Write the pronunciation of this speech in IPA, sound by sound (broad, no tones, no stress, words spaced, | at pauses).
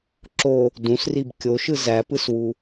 ǁo | dũsrib kʲoʃɯ zæpɯswu